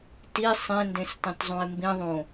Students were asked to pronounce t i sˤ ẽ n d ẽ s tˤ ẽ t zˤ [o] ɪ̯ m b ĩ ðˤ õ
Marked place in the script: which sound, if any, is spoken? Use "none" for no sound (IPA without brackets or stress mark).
õ